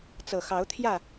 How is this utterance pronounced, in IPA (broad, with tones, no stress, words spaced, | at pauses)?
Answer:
t͡sɤ˨˩xɑ˨˦ʊ̯t̪ʰjä˥˨